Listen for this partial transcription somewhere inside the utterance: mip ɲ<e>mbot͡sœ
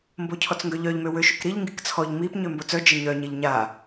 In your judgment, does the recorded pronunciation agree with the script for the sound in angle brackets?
no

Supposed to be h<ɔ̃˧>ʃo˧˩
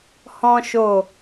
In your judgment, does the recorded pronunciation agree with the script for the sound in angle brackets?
yes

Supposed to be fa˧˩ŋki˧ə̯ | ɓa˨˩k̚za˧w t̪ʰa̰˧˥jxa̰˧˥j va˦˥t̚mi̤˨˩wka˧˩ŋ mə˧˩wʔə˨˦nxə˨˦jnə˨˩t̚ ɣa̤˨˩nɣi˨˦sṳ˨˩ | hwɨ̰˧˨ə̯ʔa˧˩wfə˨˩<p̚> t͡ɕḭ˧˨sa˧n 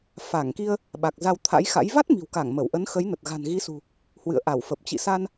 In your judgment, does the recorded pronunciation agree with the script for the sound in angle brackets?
yes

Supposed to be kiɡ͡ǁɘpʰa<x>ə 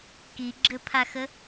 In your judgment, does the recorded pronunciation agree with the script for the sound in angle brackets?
yes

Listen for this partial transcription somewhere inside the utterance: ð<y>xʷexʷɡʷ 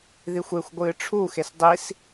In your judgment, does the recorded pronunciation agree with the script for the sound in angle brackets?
no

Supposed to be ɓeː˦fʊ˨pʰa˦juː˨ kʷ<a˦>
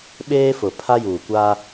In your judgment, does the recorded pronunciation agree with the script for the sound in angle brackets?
yes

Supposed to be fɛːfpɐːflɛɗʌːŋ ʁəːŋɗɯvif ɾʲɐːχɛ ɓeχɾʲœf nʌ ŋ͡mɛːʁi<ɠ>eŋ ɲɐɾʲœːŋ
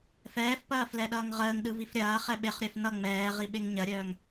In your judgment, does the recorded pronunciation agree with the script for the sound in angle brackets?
no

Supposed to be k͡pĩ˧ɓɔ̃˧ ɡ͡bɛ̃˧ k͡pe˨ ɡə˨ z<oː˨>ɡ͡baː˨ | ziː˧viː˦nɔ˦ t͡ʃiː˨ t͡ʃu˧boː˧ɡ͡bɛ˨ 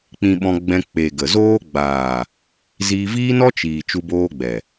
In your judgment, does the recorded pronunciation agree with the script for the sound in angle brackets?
no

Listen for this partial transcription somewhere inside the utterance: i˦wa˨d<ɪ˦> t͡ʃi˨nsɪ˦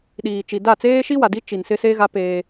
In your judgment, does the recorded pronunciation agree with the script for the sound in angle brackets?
no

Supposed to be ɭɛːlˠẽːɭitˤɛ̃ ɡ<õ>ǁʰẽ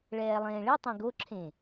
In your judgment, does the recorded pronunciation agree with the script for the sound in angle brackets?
no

